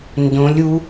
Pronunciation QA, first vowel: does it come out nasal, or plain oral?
nasal